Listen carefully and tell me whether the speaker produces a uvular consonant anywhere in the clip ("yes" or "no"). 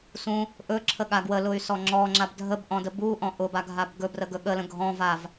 no